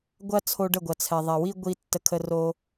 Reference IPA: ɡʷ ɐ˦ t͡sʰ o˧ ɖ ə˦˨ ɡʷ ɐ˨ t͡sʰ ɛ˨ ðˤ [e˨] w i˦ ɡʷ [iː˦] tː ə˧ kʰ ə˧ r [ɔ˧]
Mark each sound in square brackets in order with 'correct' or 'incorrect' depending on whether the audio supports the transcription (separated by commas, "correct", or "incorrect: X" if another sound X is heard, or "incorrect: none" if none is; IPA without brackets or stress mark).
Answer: incorrect: ɛ˨, incorrect: i˦, incorrect: o˧